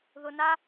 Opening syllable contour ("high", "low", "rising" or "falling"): low